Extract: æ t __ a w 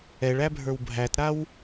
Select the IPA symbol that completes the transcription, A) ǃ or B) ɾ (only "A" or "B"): B